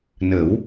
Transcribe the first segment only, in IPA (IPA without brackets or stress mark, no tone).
n